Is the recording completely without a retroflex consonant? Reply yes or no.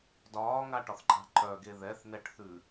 no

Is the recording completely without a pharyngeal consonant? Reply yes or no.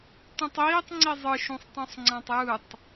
yes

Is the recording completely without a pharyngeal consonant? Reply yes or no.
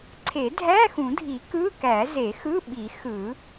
yes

